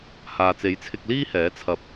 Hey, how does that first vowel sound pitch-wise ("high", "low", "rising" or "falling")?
low